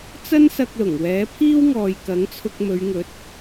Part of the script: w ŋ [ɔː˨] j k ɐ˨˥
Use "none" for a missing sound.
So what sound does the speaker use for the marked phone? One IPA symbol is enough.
ɔː˨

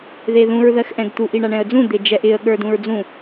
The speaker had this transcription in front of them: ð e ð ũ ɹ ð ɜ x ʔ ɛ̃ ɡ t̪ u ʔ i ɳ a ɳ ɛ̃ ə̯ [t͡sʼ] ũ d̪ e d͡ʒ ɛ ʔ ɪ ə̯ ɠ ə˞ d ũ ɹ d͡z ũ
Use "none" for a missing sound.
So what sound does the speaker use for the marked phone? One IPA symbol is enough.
d͡z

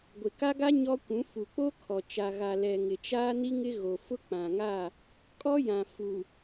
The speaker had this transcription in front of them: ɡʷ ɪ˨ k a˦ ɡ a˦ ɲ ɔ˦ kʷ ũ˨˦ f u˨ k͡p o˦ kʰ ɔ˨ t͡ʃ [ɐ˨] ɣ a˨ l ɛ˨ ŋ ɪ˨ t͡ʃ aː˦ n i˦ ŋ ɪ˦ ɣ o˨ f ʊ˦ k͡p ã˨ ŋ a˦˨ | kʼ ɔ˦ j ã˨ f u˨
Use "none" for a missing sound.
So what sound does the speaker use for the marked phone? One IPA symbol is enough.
a˨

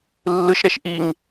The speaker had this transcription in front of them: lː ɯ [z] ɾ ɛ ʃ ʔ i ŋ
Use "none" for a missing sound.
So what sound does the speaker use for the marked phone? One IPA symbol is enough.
ʃ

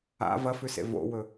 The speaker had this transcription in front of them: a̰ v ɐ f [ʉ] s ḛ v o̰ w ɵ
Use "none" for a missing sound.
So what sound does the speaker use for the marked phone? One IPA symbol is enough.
ʉ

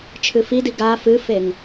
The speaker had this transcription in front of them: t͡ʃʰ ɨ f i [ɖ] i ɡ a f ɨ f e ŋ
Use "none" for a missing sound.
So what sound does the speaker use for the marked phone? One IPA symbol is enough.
d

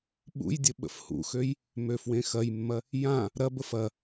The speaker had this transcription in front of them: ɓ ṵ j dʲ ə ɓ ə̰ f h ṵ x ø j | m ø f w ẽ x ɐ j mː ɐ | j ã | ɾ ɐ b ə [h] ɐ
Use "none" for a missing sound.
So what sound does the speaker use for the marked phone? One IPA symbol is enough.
f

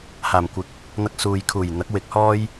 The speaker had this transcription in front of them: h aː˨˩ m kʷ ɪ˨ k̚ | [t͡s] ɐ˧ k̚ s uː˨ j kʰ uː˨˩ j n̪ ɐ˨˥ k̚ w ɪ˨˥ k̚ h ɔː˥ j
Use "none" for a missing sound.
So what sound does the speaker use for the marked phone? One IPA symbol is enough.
n̪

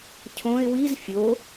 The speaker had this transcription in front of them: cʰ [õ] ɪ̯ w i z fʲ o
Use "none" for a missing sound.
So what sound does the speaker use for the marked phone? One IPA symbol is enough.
õ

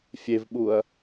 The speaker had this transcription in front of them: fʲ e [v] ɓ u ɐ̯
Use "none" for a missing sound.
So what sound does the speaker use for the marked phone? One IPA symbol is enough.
v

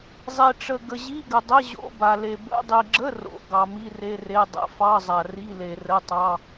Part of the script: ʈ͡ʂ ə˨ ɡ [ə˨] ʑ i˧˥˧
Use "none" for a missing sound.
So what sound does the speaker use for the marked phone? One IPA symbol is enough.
ə˨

